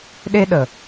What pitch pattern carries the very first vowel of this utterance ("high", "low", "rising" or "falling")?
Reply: high